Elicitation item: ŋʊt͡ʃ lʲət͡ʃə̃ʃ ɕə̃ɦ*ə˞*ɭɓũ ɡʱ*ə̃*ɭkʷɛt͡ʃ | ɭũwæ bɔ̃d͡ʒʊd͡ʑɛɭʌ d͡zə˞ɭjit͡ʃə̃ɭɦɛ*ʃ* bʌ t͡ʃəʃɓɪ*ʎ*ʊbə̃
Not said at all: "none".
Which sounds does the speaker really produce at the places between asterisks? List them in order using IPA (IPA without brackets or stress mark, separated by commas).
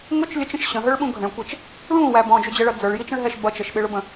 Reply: ə˞, ə̃, ʃ, ɭ